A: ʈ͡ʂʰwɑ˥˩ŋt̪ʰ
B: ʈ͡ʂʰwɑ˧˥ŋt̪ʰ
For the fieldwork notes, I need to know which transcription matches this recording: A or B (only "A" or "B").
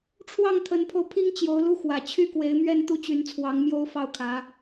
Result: A